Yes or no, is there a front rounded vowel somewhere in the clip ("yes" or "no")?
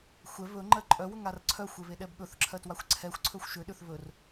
yes